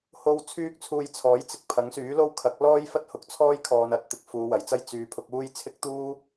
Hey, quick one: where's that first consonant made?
throat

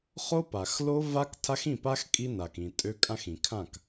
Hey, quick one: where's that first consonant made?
uvula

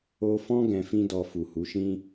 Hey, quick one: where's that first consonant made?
lips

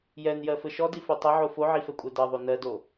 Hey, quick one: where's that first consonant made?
palate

